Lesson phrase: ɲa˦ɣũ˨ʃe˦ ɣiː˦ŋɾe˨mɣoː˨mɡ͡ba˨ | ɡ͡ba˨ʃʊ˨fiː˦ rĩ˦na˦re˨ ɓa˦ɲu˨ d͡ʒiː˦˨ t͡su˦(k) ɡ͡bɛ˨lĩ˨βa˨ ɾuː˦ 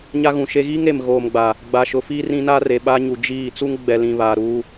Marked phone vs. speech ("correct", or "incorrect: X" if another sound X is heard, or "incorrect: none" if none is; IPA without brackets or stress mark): incorrect: ŋ